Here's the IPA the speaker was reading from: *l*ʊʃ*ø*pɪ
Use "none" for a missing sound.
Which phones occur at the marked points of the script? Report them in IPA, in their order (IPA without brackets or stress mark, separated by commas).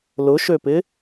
l, ø